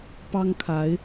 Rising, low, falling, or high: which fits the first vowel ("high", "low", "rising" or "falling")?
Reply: high